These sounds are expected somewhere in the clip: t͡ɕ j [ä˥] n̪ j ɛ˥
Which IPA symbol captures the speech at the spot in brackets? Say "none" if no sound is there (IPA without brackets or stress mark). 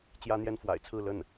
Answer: ä˥